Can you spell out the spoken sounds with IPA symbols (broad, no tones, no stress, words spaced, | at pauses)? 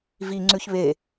vi ŋ͡ǀʉçβe